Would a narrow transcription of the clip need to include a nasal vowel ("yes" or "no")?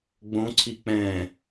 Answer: yes